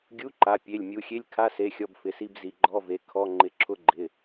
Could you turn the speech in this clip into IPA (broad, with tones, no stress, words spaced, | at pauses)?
ɡʲu˧˥˧ǃa˩˧˩pʲe˩˧˩lʲ mʲu˩˧˩xʲe˧˥˧lʲkʰa˧˥˧se˩˧˩ xʲɔ˧˥˧bfɪ˩˧˩si˧˥˧b zi˩˧˩ɡ͡ǃɔ˧˥˧ve˩˧˩ kʰɔ˧˥˧ ŋ͡ǃɪ˩˧˩ǁʰʊ˧˥˧ ɡ͡ǃɪ˩˧˩